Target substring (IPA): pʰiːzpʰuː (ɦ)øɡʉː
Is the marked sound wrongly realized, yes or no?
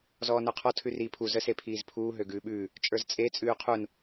no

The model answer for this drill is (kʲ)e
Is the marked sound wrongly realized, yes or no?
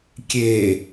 no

